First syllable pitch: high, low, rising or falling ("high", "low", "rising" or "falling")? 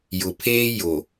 low